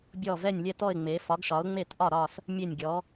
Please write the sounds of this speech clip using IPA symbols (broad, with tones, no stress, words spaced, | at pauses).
bʲɔ˧˩ vɛ˧˩nʲlʲɛ˧˩tɔ˧˩ɪ̯ ŋ͡me˩˧ fɒ˩˧ɡʃɒ˩˧ʊ̯ŋ͡me˧˩tʔɒ˧˩ ɾɒ˧˩s | mʲe˧˩nʲɡʲɔ˩˧